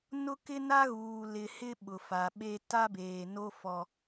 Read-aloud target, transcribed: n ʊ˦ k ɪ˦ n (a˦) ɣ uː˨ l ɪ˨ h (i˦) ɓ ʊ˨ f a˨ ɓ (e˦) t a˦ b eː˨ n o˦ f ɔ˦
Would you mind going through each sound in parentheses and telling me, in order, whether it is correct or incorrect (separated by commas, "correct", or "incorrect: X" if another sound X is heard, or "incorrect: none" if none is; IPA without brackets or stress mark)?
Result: correct, incorrect: ɪ˦, correct